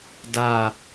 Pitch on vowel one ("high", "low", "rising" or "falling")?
falling